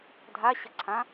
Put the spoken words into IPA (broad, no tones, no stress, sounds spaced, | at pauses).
dʱ a ɕ ɐ ǀʰ ã